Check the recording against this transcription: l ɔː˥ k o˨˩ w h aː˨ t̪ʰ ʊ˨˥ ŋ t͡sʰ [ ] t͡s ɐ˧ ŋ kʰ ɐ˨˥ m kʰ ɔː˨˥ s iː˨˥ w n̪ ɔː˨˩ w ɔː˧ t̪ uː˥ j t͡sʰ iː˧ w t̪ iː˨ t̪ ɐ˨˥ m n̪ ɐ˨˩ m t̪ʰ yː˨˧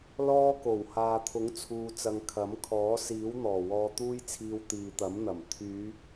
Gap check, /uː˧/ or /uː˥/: uː˧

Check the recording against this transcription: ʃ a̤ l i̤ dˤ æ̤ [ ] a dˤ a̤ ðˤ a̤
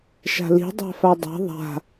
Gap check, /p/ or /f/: f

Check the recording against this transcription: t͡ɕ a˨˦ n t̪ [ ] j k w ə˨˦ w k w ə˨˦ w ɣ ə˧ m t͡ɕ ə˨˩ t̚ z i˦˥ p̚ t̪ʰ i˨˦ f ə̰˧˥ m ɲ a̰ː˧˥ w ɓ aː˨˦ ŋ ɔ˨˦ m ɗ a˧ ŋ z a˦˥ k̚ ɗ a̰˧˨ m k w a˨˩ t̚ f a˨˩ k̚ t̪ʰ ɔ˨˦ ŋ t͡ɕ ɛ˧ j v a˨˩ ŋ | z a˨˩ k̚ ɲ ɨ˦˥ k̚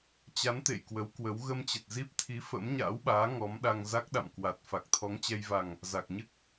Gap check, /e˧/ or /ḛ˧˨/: ḛ˧˨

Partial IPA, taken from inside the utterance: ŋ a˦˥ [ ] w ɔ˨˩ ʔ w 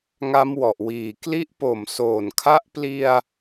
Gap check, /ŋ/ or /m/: m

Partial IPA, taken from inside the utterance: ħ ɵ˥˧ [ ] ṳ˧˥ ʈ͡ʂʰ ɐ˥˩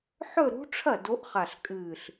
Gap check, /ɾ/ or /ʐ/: ɾ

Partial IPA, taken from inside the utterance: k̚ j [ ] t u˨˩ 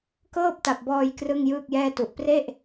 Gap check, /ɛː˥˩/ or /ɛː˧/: ɛː˥˩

